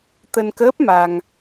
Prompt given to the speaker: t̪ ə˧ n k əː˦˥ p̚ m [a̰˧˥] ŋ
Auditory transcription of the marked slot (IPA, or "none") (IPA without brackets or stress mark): a˧